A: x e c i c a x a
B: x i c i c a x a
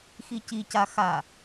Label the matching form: B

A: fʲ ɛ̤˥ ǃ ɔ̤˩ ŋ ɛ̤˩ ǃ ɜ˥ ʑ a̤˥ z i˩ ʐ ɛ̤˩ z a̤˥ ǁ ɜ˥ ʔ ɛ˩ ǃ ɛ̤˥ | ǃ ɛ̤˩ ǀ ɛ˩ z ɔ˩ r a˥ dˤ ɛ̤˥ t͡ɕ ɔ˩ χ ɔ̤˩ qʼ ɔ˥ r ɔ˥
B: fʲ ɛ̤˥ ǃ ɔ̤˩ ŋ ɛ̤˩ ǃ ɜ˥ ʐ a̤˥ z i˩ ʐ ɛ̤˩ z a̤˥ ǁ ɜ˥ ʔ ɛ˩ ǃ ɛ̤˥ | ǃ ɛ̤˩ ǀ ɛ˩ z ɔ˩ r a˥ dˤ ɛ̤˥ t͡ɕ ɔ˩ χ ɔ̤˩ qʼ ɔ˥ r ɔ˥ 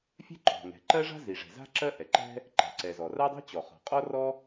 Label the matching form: B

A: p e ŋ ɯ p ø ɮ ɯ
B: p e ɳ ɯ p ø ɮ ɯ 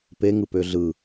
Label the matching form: A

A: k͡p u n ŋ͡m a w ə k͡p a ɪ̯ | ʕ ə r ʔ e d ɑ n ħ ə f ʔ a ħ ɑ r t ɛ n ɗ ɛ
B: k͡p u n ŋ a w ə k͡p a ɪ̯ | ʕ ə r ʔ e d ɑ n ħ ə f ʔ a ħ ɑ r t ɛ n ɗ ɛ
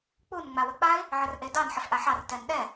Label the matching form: A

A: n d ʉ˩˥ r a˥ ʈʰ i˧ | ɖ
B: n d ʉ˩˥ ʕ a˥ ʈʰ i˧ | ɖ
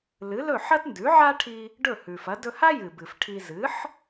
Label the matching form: B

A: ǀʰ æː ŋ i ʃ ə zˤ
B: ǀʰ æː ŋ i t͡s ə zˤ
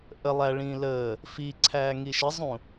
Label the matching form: A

